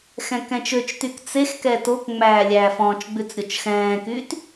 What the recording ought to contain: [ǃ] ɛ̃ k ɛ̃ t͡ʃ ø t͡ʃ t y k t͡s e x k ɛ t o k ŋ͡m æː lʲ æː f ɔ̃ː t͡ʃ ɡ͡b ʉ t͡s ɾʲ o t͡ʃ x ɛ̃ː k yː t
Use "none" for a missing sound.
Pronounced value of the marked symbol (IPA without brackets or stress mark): x